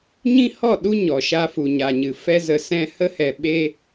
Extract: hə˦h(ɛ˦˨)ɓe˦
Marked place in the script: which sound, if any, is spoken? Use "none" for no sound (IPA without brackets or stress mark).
ɛ˧